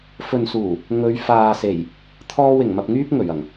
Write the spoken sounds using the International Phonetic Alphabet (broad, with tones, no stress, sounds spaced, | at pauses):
f ɵ˨ n s uː˨˩ | ŋ ɵ˨˧ ɥ f aː˨ s e˨˩ j | t̪ʰ ɔː˧ w ɪ˨˩ ŋ m ɐ˨ p̚ ŋ yː˧ p̚ ŋ ɵ˨˩ ɥ ɐ˨˩ ŋ